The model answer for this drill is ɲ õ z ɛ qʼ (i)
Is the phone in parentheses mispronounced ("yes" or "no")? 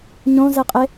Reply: yes